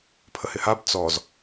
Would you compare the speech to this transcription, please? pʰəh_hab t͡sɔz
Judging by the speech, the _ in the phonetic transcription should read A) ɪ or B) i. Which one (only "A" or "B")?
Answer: A